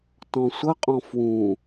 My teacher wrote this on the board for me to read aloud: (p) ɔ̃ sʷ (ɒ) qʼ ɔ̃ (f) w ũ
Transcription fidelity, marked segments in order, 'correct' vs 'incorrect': incorrect: t, incorrect: ʌ, correct

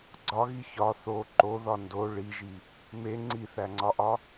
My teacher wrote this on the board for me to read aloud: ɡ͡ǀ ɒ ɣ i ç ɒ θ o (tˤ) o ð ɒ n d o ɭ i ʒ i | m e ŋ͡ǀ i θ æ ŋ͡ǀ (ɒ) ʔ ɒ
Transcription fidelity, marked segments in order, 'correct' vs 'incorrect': incorrect: ǃ, correct

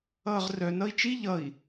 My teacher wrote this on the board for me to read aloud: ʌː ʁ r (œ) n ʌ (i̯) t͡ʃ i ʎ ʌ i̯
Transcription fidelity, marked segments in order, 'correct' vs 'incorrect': correct, correct

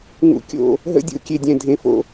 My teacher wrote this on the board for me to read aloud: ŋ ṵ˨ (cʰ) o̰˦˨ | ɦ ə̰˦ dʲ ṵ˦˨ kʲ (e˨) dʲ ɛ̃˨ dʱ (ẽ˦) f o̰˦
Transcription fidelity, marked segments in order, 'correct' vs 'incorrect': incorrect: kʲ, correct, incorrect: ẽ˨

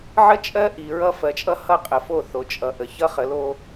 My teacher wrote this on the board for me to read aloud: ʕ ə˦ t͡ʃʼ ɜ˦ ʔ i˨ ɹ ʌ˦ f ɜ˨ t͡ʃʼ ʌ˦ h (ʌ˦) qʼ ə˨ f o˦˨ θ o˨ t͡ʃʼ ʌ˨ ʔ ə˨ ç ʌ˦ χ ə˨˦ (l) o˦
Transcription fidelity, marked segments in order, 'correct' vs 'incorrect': correct, correct

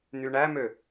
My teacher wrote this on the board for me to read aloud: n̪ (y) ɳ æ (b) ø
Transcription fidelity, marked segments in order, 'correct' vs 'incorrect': correct, incorrect: m

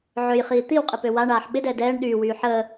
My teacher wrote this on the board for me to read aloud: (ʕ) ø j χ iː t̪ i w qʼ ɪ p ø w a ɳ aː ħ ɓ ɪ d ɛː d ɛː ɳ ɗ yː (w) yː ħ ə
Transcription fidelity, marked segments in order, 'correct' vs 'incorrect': correct, correct

